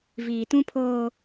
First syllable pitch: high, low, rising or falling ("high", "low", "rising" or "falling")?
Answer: low